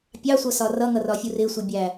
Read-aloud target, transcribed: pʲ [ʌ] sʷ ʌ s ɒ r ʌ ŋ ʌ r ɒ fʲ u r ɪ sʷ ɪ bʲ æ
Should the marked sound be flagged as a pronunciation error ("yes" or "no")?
yes